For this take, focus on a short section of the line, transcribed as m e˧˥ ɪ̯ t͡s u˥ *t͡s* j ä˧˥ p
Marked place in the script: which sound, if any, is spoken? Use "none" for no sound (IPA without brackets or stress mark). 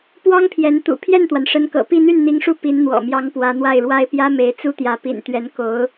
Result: t̪